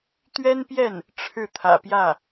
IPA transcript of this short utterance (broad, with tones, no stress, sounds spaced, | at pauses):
t̪ ɥ ɛ˥ n p j ɛ˥˩ n | ʈ͡ʂʰ ɻ̩˥˩ t̪ʰ ä̰˨˩ p j ä˥˩